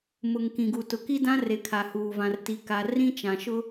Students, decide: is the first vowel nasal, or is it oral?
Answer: oral